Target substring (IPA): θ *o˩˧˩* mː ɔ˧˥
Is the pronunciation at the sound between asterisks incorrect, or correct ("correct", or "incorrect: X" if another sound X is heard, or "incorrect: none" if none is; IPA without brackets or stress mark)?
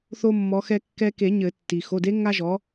incorrect: o˥